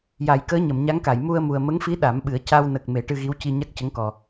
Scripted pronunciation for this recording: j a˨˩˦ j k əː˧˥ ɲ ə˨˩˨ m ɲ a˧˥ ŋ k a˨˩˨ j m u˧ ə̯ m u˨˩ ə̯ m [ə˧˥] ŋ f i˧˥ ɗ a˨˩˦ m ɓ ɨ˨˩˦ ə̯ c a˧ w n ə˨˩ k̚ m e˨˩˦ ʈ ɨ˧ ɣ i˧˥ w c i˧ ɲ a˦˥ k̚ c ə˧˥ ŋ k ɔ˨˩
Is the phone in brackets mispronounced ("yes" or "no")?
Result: no